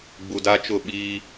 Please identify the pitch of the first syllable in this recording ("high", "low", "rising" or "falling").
low